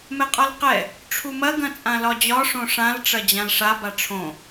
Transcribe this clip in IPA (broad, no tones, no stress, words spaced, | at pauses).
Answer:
mɛqʼɒlqɛ | ʈ͡ʂʰumɐ ɡɐ̃t͡sʼãlɒd͡ʑɒ ʂõʂãl ʈ͡ʂɐd͡ʑãlʂa baʈ͡ʂʰõ